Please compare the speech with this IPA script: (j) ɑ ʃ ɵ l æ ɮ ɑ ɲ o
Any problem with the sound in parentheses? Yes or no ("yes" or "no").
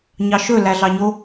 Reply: yes